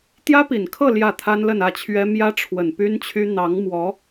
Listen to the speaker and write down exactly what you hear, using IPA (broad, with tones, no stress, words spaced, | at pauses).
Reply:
t̪jä˥pi˨˩nkʰɤ˥˧ ljä˥˩t̪ʰa˥n lə˥˧nä˥˩t͡ɕʰɥɛ˥ mjä˥ʈ͡ʂʰwə˨˩npy˥n t͡ɕʰy˥ n̪ɑ˧˥ŋmwɔ˧˥